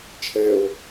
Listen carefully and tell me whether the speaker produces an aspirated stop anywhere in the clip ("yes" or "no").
yes